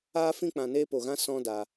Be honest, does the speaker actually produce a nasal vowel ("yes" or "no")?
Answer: yes